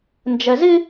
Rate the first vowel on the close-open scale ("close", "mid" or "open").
mid